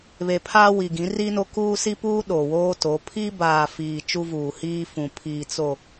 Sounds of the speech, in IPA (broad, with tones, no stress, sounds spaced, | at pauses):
β e˨ pʰ aː˦ w i˨ ɡ ĩ˨˦ r i˦ n o˦ k uː˦ s i˦ p uː˦ ɗ o˨ w oː˦ t o˨˦ pʰ i˦ b aː˨ f iː˨ t͡ʃ u˦ v uː˨ h iː˦ f ũ˨ pʰ iː˨ t͡s o˨